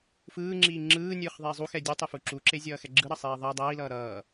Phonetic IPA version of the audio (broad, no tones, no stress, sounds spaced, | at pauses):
f ɯː ŋ͡ǁ iː ŋ͡ǁ ɯː nʲ ɯː χ ðˤ eː zˤ u x ɛ dʲ u tˤ e f u ǁ u ǁ e zʲ ʌː x ɛ ɡ͡ǁ ɯ ɾ ʌ sˤ iː ðˤ ɛ dˤ ʌː i̯ l ʌː ɾ ʌː